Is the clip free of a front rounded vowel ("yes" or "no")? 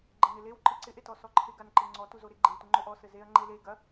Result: yes